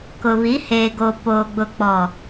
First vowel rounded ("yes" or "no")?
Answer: yes